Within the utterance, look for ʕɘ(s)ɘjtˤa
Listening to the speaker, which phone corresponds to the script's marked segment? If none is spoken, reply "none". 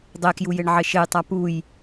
ʃ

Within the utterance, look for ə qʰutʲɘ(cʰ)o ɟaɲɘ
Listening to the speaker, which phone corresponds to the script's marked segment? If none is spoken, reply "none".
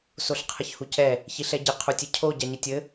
cʰ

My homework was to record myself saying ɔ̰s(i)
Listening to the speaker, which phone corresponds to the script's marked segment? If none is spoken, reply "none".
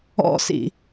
ḭ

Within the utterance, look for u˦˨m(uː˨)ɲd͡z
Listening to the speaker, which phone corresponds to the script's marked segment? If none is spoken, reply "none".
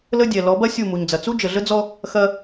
u˨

